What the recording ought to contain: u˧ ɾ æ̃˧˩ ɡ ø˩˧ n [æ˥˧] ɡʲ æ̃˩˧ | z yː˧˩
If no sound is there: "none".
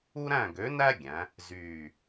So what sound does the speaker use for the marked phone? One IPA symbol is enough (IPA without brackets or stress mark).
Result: æ˥